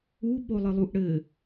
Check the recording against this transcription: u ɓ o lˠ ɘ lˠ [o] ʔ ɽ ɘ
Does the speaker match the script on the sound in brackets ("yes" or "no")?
no